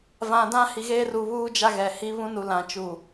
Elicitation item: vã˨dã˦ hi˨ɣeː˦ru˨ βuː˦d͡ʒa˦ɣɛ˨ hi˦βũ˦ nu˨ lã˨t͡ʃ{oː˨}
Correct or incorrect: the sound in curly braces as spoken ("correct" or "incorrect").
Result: incorrect